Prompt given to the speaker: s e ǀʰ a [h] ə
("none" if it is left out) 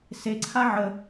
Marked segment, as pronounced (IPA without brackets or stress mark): ʕ